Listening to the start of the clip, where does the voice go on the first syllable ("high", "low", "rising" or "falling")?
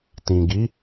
low